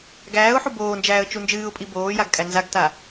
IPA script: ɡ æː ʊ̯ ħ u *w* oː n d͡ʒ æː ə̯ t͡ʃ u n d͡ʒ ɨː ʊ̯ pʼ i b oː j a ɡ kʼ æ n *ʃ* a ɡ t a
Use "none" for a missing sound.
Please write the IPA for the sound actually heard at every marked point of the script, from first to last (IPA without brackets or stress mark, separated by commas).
b, z